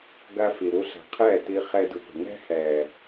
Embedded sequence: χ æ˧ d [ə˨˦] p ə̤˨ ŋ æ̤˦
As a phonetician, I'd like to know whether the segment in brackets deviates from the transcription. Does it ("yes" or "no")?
yes